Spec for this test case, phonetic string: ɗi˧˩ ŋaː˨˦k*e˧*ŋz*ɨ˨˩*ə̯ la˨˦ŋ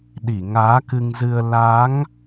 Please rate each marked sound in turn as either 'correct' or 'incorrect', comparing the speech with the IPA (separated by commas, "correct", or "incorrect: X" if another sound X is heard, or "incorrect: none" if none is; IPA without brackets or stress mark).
incorrect: ɨ˧, incorrect: ɨ˧